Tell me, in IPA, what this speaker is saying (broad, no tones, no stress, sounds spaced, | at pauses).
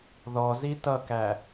ð ɔ z i t ʌ k æ